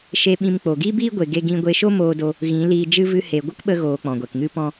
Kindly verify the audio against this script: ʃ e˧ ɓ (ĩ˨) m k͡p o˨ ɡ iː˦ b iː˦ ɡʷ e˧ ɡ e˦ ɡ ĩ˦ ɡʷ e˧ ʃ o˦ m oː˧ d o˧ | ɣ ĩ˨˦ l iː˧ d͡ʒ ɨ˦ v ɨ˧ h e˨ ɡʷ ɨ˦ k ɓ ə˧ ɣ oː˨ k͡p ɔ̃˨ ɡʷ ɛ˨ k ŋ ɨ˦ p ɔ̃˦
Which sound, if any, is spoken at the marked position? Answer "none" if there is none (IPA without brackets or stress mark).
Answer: ĩ˧